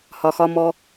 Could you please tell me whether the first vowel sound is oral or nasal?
oral